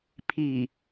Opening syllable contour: low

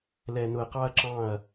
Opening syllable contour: low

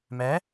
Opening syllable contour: rising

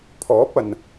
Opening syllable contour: rising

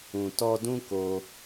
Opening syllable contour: low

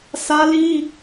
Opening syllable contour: high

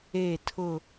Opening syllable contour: falling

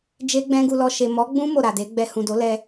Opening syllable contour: high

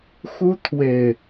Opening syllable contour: high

